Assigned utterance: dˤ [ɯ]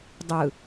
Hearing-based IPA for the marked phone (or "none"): ɯ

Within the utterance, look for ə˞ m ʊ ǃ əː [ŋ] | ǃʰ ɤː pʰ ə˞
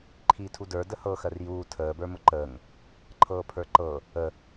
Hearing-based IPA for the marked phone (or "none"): ŋ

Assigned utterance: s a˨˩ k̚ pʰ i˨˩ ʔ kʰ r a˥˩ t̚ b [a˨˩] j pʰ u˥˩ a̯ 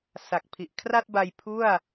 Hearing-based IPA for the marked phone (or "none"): a˧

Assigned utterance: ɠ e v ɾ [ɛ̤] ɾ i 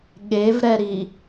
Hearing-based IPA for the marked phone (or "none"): ɛ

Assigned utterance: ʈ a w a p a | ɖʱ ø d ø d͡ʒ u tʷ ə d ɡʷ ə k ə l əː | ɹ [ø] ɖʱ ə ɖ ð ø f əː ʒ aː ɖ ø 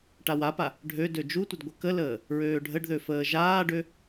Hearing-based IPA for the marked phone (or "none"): øː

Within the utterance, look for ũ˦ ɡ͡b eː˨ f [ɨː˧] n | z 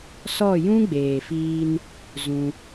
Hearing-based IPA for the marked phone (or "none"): iː˧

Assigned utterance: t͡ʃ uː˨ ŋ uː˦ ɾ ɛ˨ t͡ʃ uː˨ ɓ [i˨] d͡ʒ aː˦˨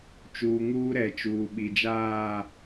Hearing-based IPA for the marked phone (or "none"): i˨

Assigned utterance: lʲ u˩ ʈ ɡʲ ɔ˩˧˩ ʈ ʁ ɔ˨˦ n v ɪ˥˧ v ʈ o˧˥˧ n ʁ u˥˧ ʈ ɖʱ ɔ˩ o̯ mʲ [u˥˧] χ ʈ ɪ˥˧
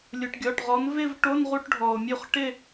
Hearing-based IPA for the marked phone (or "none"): u˥˧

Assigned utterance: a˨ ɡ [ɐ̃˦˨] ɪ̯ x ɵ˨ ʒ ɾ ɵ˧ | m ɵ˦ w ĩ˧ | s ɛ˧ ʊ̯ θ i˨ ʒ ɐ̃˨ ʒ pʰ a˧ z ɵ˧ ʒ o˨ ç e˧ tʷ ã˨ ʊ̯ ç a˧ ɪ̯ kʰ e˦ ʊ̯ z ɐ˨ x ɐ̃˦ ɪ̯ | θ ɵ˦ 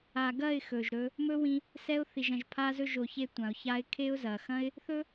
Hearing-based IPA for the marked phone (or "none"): ɐ˦˨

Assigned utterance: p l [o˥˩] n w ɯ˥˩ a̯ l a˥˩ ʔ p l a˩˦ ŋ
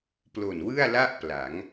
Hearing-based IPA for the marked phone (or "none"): o˨˩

